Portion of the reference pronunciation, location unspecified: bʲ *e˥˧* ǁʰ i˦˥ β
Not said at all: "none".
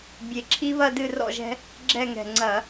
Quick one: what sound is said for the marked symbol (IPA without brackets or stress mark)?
e˧˩